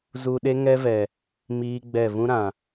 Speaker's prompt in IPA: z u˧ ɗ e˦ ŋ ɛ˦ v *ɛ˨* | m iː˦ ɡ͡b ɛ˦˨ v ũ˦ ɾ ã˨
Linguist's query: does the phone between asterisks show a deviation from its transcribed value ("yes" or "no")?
no